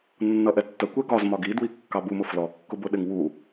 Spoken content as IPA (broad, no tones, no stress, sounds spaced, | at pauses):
nː ʌ ʔ ɛ tː ə kʷ ɛ ɡ ɒ z m ɒ ɡ i d w i kː ɑ b u m ʊ f l ɔ kː ʊ b ʊ ɗ ɪ ŋ w u